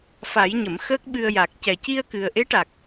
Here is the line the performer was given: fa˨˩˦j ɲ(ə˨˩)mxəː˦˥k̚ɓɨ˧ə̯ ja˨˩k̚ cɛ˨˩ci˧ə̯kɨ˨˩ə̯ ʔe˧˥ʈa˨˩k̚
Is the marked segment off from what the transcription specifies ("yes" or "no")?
yes